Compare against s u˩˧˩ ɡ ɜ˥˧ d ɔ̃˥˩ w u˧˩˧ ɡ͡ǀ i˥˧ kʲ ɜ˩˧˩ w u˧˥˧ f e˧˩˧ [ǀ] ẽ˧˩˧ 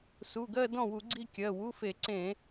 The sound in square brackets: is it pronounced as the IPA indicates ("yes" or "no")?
yes